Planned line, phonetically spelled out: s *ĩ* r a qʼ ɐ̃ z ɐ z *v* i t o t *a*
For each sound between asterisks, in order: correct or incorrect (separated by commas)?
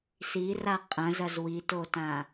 incorrect, incorrect, incorrect